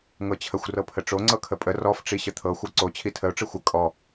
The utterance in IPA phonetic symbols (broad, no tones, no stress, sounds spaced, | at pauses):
ŋ ɤ t͡ɕʰ ə xʷ r ɤ pʰ ə ʈ͡ʂ o ŋ͡ǀ ɤ kʰ ə pʼ ə r ɔ f ʈ͡ʂ i ɕ ə t̪ʰ ɤ xʷ ɤ ǀ o t͡ɕʰ i tʰ ə ʊ̯ ʈ͡ʂ ɯ xʷ ə kʼ ɔ